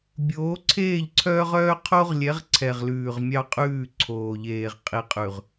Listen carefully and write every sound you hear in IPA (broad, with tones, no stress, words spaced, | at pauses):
bʲoː˨˦ǀʰeː˦˨ʎǀʰœː˦ʁ œː˦qʰo˦ʁlʲɛ˨˦ʁ ǀʰɛ˨ʁlʉː˨ʁmʲɑ˦qʼʉː˦˨ ǀʰoː˨ʎeː˨ʁ qʼi˨qʼʉ˨ʁ